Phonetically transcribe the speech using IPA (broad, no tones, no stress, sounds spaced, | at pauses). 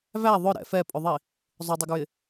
v æ ðˤ ʊ ɾ ɛ̰ f ɛ pʼ ʊ ðˤ i | zˤ ʊ dˤ ɪ ɡ ɹ ɪ